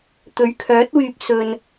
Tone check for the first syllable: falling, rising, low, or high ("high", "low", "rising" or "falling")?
rising